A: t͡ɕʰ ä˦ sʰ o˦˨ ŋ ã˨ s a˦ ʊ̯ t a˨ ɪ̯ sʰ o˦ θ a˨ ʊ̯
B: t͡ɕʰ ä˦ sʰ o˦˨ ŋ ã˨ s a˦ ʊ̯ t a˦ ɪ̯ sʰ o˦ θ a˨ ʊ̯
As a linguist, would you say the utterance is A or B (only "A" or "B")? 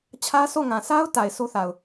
A